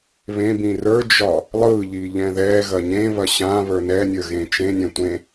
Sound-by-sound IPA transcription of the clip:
β ẽ b ĩ r ə˞ d͡ʒ ɒ | lˠ ɯ ʎ i ʎ ɛ̃ ð ɛ ɣ ɐ ɲ ẽ β ɐ ɕ ã β ə˞ n ɛ nʲ ə˞ ɣ ẽ t͡ʃ ẽ nʲ ɛ̃ tʷ ẽ

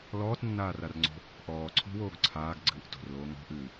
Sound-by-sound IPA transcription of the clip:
l ɔː t nː aː r a r ŋ͡ǀ o̤ | ʔ ɔː ǀʰ o̤ w oː ɡ ǀʰ aː ɡ ɡ͡ǀ ɨː ʔ t o̤ r l oː ŋ ɔ̤ ʔ ɨː

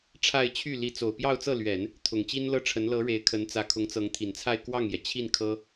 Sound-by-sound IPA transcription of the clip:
ʈ͡ʂʰ a˥˧ ɪ̯ t͡ɕʰ y˥˩ l i˧˥ t͡s o˨˩ ʊ̯ p j ɑ˥˧ ʊ̯ t͡s ɤ˥˩ l ɥ ɛ˨˩˦ n | t̪ʰ ʊ˨˩ ŋ t͡ɕ i˥ n l ɤ˥ ʈ͡ʂʰ ə˧˥ n l ɤ˧˥ ɻ e˧˥ ɪ̯ kʰ ə˧˥ n t͡s ä˧˥ kʰ ʊ˧˥ ŋ t͡s ɤ˧˥ ŋ t̪ʰ i˨˩ n t͡sʰ a˥˧ ɪ̯ k w ɑ˥˩ ŋ j ɛ˩ t͡ɕʰ i˥˩ n kʰ ɤ˥

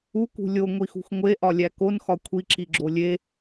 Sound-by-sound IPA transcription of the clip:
u k ṳ lʲ o ŋʷ i x ṳ x ŋʷ e ʔ ɒ lʲ æ k o n x ɒ kʷʰ i ǁ i ɡ͡ǁ o lʲ e

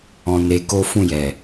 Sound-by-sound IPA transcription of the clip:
ɔ̃˧ n e˧ k o˦ f ũ˦˨ j ɛ˨

